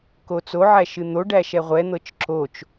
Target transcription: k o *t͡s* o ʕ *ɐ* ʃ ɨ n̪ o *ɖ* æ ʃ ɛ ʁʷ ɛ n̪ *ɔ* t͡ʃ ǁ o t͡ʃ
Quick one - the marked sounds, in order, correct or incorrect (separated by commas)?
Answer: correct, incorrect, correct, incorrect